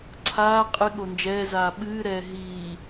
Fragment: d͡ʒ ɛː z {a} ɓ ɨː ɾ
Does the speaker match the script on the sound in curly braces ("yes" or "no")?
no